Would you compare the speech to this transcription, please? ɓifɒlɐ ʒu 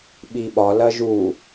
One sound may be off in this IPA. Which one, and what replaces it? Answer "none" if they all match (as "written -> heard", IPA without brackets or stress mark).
f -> ɓ